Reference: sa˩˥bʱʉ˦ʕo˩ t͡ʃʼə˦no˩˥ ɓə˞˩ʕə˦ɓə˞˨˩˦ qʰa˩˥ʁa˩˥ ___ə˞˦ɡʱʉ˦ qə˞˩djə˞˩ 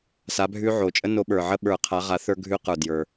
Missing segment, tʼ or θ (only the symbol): θ